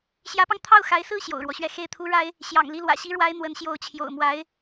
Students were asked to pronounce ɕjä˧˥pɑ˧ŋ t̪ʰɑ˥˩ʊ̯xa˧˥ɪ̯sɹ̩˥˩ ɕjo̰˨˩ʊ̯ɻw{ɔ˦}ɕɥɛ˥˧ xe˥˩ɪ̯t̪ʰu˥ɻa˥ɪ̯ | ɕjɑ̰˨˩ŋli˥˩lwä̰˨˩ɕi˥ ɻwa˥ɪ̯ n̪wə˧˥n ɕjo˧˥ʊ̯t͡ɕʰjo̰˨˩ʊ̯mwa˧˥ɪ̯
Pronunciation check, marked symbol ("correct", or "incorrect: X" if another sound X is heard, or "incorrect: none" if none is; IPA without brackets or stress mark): correct